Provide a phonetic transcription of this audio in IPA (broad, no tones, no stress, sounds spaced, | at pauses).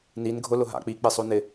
n i n ɡʱ ʊ l ʊ ɦ a̰ k͡p i k͡p e sˤ o n ɪ